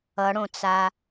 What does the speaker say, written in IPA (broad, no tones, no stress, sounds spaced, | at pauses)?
ʌ ɽ õ t͡s a